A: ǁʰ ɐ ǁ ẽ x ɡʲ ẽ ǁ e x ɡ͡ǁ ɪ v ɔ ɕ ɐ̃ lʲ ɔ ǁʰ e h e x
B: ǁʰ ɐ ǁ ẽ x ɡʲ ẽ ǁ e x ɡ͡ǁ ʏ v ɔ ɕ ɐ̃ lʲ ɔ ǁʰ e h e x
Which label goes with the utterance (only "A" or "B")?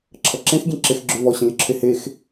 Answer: B